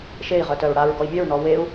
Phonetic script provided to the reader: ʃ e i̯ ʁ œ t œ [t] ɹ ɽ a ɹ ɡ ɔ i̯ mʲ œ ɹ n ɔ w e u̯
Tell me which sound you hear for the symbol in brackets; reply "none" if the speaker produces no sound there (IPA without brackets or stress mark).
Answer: none